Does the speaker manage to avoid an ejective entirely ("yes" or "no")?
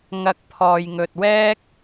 yes